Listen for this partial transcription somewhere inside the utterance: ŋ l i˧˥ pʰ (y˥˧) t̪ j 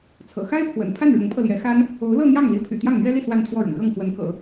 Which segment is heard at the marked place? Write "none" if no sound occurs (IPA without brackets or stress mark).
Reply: y̰˨˩